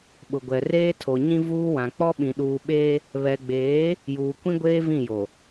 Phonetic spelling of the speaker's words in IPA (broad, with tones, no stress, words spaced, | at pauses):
ɓʊ˨ɡʷɛ˨ reː˦tʰo˨ ɲĩ˦ vuː˦wã˨ k͡pɔ˦ɓĩ˨ ɗuː˨ɓeː˦ | βɛ˨ɡ͡beː˨˦ | juː˨kʷĩ˦ɡʷeː˦ vĩ˦˨jo˨